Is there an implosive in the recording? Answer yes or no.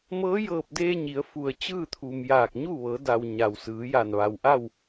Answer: no